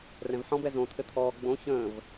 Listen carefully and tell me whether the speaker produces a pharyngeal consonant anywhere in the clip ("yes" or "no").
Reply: yes